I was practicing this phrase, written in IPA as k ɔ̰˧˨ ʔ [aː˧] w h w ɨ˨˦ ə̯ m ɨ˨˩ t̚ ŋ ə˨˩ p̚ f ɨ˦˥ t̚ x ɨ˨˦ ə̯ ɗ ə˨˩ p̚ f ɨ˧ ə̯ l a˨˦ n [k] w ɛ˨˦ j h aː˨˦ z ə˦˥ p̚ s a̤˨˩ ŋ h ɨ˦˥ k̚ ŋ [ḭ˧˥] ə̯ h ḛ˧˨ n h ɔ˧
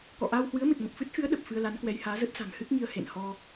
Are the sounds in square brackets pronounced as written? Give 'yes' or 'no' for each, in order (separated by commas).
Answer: yes, yes, no